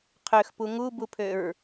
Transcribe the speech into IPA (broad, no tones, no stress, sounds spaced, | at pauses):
qʰ ø x p u ŋ u b u pʰ ø ɹ